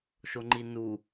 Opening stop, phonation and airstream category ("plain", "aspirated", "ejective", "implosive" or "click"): click